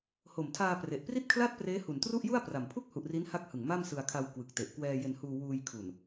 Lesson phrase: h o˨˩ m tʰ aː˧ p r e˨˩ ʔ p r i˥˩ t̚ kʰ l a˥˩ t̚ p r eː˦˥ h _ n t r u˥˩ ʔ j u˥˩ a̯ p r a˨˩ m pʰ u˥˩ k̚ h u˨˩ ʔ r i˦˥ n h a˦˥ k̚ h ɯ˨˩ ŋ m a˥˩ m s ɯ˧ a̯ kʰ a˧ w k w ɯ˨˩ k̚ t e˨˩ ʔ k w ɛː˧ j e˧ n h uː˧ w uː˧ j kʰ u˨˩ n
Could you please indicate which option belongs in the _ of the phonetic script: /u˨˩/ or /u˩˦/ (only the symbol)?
u˨˩